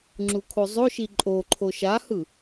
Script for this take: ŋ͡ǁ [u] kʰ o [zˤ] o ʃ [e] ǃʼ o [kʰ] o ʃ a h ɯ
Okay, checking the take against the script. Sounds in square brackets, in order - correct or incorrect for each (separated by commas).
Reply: correct, correct, incorrect, incorrect